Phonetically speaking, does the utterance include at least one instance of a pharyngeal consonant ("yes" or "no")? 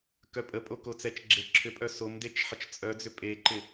yes